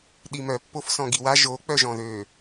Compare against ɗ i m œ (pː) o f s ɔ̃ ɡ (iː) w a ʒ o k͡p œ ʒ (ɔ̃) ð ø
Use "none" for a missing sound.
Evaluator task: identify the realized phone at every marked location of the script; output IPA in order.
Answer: pː, i, ɔ̃

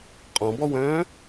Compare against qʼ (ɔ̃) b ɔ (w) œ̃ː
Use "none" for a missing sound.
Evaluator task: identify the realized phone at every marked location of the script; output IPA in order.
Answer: ɔ̃, w

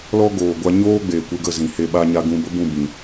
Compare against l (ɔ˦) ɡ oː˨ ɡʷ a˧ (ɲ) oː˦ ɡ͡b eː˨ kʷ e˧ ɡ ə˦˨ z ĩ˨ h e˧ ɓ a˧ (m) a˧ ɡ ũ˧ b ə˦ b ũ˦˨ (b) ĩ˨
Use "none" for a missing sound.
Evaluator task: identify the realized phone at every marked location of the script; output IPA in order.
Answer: ɔ˦, ɲ, ɲ, b

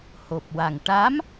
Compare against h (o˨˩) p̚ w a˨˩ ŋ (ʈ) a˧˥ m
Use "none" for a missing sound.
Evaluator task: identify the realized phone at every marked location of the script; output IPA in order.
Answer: o˨˩, ʈ

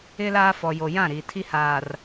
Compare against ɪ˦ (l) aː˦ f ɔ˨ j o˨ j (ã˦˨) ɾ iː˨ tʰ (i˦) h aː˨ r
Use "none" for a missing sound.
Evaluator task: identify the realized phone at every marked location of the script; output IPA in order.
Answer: l, ã˦˨, i˦

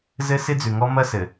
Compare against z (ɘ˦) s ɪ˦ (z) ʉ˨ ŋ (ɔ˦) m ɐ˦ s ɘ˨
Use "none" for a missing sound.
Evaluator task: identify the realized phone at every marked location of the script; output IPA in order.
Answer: ɘ˦, d͡z, ɔ˦

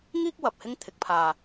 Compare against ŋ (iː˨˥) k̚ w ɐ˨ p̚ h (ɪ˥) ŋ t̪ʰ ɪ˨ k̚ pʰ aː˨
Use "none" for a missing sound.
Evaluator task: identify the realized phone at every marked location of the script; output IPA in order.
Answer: iː˥, ɪ˥

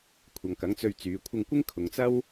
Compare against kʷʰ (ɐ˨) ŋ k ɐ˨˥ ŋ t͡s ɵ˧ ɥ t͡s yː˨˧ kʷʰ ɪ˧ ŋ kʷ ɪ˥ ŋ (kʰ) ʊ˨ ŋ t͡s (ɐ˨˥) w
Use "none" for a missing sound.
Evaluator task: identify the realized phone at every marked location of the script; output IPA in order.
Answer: ɐ˨, kʰ, ɐ˥

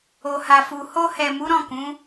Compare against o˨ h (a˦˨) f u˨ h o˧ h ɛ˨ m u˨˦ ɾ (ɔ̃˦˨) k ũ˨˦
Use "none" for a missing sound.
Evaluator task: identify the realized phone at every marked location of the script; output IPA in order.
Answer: a˨, ɔ̃˦˨

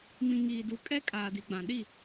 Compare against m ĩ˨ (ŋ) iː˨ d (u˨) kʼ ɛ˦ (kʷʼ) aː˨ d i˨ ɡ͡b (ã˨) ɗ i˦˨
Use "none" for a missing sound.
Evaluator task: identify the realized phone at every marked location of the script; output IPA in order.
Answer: ŋ, u˨, kʼ, ã˨

